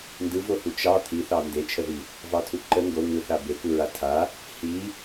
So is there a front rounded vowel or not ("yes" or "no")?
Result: no